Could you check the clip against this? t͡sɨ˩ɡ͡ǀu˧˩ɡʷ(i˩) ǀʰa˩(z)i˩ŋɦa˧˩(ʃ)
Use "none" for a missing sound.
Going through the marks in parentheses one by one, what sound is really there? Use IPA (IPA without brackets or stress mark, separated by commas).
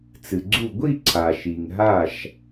i˥˧, ʃ, ʃ